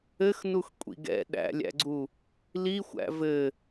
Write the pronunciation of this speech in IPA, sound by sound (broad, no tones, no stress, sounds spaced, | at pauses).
ɘ x n u x kʷʼ ḭ ɡ ɛ̰ ɗ æ̰ lʲ æ̰ ɡ͡ǀ u | l i xʷ æ̰ v ɘ